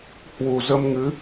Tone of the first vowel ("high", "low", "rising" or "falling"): low